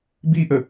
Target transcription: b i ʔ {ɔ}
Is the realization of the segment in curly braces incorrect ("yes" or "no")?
yes